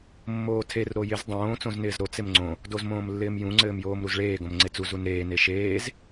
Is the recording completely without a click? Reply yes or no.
no